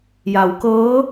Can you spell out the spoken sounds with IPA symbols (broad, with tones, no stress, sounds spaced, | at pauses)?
j a˩˧ w k ɤː˧˥